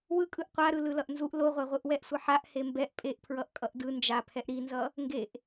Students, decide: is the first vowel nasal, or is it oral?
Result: oral